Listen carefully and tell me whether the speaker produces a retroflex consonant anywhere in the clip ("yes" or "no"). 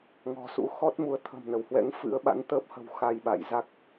no